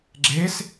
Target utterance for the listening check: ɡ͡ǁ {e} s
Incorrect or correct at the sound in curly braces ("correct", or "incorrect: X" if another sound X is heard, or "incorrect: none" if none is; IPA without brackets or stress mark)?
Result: correct